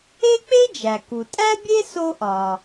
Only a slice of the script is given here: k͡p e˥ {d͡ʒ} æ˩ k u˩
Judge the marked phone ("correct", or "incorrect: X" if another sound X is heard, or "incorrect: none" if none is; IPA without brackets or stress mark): correct